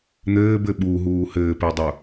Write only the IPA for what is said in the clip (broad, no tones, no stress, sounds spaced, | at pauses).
n̪ ɘː b ɘ ɓ u ɦ uː h ɘː p e dˤ u